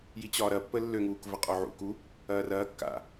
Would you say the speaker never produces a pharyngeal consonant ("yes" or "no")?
no